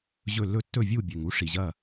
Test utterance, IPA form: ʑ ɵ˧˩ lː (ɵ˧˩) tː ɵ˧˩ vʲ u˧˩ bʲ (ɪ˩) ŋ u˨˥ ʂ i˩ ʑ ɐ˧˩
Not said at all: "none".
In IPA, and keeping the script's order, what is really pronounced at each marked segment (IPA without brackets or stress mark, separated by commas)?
ɵ˧, ɛ˩